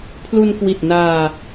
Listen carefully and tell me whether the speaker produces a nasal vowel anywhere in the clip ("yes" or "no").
no